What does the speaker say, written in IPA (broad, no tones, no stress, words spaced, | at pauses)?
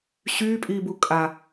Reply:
ɕyːpʼiː bukʼa